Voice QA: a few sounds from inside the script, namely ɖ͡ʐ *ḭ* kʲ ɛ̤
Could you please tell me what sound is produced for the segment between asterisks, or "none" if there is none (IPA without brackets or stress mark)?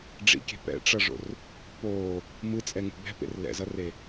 ḭ